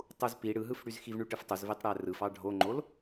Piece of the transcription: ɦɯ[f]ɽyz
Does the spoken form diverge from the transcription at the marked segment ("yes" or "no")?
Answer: no